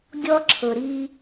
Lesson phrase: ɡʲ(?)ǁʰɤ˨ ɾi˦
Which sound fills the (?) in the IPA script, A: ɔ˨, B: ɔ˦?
B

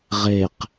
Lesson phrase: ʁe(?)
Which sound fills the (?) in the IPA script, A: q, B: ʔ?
A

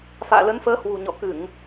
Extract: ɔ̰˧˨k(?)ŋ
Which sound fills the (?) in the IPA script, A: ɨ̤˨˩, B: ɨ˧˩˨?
B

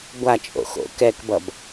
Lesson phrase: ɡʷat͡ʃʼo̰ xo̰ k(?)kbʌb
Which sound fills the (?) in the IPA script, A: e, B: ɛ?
B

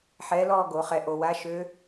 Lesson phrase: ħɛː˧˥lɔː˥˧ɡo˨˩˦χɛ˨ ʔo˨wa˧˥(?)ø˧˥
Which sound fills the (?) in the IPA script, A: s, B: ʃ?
B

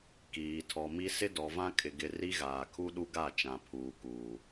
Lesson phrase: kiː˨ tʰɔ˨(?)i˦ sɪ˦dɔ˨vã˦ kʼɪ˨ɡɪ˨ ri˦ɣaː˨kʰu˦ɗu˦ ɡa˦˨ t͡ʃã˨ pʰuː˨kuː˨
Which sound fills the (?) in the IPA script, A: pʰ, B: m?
B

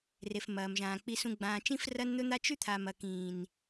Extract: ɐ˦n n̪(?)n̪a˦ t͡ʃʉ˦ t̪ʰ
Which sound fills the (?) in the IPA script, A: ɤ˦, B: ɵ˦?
B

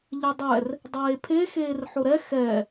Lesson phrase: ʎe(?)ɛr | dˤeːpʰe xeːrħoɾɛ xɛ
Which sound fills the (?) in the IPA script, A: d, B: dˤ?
B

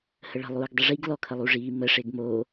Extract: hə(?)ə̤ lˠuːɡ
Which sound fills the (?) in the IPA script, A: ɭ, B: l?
A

